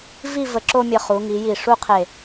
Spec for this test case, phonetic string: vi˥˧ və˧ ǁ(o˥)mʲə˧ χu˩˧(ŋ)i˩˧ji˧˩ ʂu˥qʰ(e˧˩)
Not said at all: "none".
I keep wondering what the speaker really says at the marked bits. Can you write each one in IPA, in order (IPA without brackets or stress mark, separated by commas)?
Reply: o˥, ŋ, e˧˩